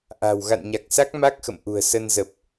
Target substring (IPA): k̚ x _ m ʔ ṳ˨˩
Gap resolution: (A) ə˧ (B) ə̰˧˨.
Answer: B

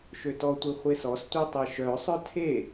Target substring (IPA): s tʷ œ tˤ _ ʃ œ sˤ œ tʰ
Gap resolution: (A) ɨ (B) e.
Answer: B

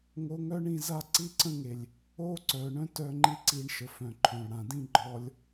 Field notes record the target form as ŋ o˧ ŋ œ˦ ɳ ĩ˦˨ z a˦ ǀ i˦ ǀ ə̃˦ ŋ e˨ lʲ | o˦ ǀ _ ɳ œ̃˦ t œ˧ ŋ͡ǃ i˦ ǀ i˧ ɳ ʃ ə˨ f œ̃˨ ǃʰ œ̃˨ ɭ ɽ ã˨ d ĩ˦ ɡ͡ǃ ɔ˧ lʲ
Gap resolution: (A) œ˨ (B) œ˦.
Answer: A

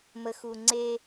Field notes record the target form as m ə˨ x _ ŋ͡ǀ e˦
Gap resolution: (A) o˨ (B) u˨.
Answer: B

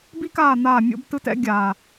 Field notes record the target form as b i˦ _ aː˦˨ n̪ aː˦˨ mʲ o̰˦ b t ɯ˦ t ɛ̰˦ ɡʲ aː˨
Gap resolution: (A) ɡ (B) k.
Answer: B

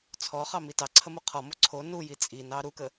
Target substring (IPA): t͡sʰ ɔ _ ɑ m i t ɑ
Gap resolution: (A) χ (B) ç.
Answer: A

